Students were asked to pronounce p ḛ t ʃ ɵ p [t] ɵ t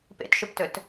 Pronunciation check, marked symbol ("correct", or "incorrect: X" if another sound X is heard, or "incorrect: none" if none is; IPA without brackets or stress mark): correct